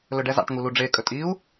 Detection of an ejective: present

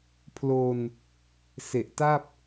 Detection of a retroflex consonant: absent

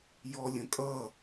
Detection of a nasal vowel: present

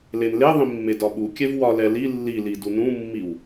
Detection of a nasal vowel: present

